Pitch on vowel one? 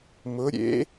rising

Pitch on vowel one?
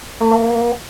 high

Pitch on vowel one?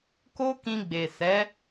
high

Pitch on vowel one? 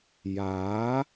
rising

